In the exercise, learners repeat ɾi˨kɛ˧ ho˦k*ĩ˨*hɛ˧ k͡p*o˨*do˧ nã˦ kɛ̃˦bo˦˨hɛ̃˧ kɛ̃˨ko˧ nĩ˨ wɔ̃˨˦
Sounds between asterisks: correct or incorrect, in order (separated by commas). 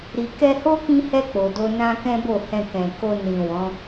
incorrect, correct